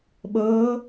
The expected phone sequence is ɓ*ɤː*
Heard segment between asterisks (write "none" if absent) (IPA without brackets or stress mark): ɤː